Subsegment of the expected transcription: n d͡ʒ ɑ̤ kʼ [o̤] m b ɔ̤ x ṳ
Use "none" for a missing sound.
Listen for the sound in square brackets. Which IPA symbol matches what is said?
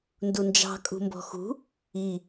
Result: ṳ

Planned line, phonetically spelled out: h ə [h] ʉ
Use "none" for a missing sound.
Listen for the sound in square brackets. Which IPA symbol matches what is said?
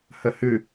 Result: h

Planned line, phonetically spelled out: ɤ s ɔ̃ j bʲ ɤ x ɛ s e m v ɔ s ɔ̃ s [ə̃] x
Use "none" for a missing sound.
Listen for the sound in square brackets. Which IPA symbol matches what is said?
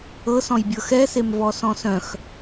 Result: œ̃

